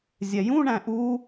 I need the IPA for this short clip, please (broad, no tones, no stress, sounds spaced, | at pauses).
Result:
zʲ ɛ j ũ ɳ æ̃ ʔ u